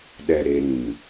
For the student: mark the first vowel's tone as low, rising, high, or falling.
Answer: low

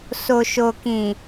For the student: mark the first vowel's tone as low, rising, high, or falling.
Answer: low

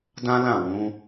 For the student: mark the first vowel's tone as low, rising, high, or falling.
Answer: high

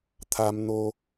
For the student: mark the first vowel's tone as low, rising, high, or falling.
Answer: high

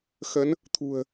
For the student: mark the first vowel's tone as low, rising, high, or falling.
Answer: rising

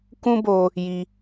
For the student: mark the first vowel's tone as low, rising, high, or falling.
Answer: high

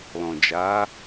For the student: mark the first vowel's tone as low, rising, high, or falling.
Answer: low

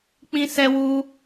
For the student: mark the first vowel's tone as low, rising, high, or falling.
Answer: high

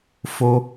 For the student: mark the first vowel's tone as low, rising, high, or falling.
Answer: high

